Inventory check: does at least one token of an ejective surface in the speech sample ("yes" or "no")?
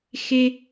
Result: no